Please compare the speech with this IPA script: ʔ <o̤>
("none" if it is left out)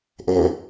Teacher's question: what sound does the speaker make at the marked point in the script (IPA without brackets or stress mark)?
o